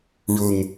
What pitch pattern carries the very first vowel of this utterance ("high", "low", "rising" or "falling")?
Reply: low